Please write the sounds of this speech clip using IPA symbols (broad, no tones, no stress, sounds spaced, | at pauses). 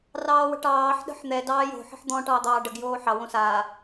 r ɑː w ə̤ ʈ ɑː ħ ɗ ə̤ ħ n̪ ɛ d ɑː j o̤ ħ ə̤ ħ d̪ ɔ̃ ʈ ɑː d̪ ɑː ɖ ə ɡ j oː ħ ɑ w õ s aː